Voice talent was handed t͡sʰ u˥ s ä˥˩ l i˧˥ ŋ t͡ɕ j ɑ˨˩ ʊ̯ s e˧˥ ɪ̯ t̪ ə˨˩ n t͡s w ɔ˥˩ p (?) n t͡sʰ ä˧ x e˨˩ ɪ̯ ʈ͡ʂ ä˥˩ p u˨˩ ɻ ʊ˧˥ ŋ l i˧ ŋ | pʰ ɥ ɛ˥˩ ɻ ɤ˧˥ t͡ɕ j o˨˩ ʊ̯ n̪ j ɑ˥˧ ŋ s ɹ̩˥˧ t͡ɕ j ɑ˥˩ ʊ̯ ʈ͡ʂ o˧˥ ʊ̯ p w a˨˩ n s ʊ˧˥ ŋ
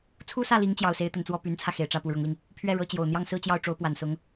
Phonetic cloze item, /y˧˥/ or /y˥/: y˧˥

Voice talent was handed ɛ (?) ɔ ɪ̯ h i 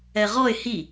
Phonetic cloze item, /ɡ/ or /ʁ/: ʁ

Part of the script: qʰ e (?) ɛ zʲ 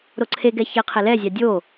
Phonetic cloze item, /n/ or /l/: l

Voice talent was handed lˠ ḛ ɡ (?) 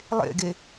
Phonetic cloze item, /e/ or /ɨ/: e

